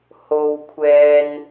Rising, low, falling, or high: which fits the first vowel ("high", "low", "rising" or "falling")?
high